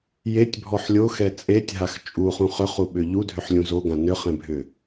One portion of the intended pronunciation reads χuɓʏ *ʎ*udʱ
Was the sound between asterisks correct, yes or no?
yes